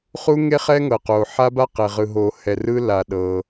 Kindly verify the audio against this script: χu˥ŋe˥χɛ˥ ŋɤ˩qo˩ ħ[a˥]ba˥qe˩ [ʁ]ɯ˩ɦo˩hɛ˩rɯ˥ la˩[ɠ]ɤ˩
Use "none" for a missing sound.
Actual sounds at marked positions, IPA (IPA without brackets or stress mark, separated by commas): a˥, ʁ, ɗ